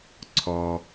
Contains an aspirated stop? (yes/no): yes